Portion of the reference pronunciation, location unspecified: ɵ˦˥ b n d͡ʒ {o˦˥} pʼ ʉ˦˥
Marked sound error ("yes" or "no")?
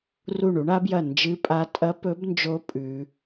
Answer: no